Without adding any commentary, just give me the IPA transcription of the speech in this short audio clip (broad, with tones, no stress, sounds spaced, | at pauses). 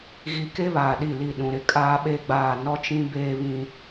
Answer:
ɣ i˨ k e˦ β aː˨ ɗ i˦˨ l i˦˨ ɗ ũ˨ ɾ ɪ˨ kʼ aː˦ ɓ e˦ ɡ͡b aː˦˨ n ɔ˦ t͡ʃ ĩ˦ b eː˦ β ĩ˦